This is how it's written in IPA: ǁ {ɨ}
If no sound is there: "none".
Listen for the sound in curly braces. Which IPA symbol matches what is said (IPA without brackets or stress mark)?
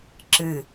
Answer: ɨ